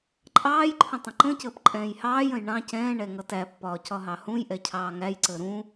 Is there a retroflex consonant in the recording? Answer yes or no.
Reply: yes